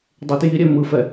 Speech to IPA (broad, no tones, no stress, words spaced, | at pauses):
dˤetjiɾʲɛ mɯfɛ